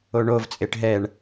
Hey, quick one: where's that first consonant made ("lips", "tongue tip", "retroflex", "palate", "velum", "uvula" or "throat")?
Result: retroflex